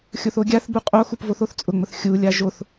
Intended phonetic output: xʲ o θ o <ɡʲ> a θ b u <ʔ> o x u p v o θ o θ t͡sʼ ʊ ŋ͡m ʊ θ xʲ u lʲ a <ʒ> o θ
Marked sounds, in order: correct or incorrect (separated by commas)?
correct, incorrect, correct